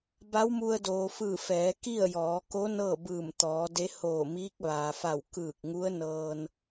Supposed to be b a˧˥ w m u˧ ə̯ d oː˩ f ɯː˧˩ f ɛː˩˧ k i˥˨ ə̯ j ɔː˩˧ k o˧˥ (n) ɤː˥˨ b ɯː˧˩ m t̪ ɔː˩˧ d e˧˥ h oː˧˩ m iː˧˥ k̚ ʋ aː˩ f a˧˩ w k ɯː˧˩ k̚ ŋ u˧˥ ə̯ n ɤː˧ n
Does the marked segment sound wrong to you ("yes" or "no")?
no